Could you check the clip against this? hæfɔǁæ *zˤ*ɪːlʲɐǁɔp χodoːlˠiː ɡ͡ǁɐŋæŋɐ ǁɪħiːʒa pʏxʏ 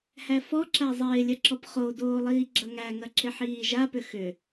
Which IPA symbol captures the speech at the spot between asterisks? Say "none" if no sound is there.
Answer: zˤ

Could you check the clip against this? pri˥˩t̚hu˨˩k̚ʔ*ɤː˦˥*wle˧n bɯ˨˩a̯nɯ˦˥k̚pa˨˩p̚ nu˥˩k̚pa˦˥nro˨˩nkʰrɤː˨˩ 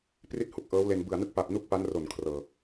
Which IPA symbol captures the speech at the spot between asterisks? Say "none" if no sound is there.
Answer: ɤː˦˥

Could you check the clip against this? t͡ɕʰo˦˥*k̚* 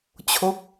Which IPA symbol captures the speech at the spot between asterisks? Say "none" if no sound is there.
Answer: k̚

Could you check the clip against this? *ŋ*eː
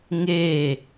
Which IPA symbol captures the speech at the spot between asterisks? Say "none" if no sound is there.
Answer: ŋ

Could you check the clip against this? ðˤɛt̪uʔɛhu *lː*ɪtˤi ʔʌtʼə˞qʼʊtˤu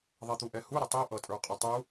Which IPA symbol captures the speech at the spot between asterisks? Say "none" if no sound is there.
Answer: ɾ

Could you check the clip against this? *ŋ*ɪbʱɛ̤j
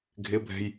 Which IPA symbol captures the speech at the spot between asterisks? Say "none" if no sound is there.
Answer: ɡʱ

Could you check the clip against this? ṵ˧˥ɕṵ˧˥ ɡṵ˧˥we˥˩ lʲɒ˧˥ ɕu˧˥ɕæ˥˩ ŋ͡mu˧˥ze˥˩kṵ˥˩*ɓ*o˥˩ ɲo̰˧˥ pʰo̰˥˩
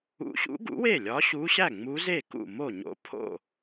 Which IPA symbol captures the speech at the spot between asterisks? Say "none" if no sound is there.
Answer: m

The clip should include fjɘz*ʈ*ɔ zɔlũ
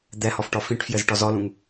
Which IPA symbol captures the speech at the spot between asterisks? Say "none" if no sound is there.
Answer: ʈ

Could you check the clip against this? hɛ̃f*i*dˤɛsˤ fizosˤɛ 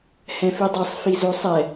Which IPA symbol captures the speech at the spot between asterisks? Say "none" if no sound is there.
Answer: i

